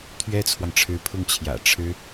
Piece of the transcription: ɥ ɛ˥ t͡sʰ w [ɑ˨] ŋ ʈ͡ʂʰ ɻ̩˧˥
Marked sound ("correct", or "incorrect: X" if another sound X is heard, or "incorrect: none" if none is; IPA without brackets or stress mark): correct